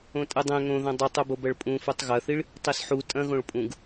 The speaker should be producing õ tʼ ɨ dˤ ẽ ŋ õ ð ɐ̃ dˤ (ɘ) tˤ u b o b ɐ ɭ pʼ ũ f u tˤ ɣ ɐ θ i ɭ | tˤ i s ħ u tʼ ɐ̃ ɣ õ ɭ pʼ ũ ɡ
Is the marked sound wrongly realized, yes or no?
no